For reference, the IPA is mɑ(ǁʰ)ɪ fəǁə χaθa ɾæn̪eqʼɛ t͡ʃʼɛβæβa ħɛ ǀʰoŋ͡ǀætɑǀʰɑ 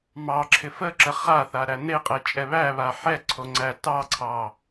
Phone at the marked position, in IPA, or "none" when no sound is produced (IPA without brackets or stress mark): ǁʰ